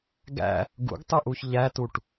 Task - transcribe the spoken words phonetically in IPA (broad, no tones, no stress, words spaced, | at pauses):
ɡæ̰ | ɡṵɡtˤuʔuç ʎætuʈ